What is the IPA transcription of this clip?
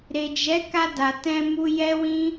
ɾ e˨ d͡ʒ ɛ˨˦ k a˧ d a˨ t ɛ̃˧ m u˧ j ɛ˦ w ĩ˦

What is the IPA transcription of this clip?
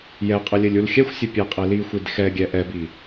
j ɛ qʼ ə lʲ ɘ lʲ u l xʲ ɛ xʷ sʲ ɘ pʲ e qʼ e l i xʷ i d x ɛ ɡʲ ɛ ʔ ɛ b i

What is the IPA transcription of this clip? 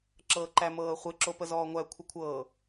ǁ ɤː ǃ æ m ɤː χʷ ɪ ǁ o p ə z ɔː ŋʷ æ kʷʰ ə kʷʰ ɤː

